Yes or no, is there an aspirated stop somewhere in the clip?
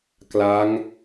no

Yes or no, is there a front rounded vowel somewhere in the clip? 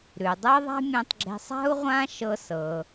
no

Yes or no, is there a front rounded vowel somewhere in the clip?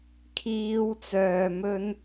yes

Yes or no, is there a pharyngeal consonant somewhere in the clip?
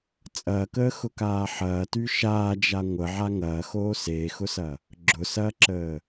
yes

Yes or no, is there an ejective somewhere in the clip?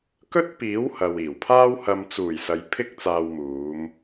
no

